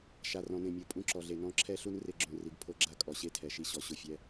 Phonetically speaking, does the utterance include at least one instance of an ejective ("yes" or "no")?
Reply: yes